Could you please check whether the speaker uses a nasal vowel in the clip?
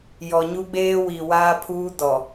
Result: no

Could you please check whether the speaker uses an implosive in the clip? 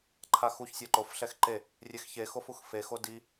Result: no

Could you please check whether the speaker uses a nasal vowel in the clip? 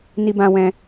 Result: yes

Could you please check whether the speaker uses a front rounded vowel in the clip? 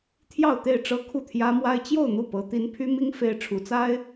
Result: yes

